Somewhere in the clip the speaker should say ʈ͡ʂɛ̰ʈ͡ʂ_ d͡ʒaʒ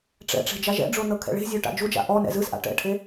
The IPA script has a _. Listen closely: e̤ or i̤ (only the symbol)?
e̤